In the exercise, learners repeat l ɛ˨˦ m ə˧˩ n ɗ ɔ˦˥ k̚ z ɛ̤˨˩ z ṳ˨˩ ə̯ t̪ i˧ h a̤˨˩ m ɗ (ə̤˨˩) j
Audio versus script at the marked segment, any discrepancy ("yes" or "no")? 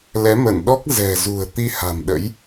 yes